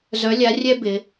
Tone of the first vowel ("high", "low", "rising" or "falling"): rising